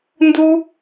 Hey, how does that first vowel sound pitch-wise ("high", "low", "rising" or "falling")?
high